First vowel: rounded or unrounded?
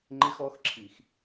unrounded